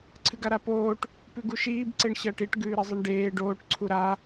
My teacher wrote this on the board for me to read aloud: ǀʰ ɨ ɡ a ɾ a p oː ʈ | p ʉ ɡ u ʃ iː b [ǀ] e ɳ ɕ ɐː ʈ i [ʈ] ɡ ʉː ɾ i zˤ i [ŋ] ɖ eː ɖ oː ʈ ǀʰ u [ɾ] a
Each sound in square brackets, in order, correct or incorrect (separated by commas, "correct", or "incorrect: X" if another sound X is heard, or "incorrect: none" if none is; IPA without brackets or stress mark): correct, correct, incorrect: ɳ, correct